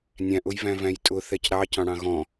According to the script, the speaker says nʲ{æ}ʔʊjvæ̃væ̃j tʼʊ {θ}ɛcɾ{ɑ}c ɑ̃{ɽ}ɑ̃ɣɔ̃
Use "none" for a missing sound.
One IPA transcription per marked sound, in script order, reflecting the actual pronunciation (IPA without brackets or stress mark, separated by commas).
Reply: æ̃, θ, ɑ, ɽ